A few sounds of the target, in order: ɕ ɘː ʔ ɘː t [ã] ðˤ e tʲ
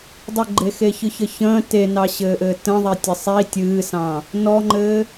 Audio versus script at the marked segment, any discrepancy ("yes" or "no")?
yes